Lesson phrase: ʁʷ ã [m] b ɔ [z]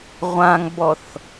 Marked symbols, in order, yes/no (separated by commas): no, no